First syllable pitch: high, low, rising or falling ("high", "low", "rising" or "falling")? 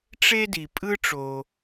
high